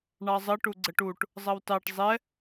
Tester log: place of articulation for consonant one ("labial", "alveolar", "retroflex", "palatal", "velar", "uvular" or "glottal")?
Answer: retroflex